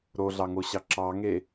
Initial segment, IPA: ɾ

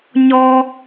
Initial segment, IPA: ɲ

